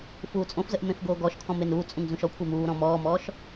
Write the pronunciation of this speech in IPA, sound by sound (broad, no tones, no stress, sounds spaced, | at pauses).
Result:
f uː t͡sʼ õ f z ə ʔ m ẽ f ɡ oː ɡ ɔ ʃ kʰ ɔ̃ m e n uː t͡sʼ ũ ŋ z ũ ʃ ɔ kʷʰ e m uː ɾ ɔ̃ m ɔː m ɔː ʃ